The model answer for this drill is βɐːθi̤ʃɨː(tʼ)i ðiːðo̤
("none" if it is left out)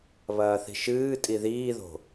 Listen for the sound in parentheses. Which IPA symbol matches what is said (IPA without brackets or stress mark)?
tʼ